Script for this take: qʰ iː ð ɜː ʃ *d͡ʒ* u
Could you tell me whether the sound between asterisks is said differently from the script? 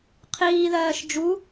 no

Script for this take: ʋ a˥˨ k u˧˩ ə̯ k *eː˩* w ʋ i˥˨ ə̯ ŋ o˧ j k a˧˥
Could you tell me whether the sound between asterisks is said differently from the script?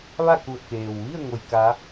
no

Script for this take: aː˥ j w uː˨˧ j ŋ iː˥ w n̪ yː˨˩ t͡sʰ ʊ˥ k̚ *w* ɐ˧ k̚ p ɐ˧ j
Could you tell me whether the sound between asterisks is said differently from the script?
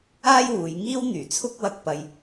no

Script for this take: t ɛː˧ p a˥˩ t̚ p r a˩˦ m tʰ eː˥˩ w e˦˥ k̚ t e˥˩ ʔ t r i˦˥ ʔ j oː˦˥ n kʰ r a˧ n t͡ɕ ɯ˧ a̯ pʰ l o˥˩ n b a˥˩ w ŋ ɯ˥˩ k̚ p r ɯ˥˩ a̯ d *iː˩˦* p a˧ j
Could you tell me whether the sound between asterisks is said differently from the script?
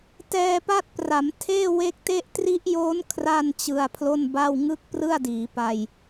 no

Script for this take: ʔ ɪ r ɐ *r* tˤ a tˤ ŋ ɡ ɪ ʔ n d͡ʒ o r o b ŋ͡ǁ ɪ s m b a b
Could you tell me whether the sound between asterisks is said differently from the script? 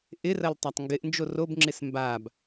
yes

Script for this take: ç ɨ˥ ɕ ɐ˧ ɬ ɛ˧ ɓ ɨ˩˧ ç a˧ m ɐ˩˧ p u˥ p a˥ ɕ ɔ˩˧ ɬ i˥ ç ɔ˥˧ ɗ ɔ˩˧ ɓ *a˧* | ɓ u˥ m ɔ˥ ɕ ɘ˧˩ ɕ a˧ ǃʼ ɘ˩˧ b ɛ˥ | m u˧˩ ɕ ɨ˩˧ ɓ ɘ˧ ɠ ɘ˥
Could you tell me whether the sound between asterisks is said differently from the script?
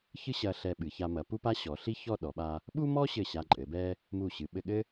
no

